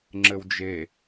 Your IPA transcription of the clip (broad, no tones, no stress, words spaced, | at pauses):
ŋ͡ǁɘwd͡ʒe